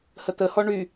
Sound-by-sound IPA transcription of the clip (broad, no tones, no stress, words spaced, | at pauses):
hət̪əhɔ ɳy